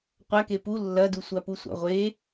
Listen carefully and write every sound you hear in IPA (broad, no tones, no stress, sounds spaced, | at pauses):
qʷ a k e p u lː ɐ d u sʷ a p u sʷ a̰ ʁʷ e